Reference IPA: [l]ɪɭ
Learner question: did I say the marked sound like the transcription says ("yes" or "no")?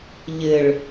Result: no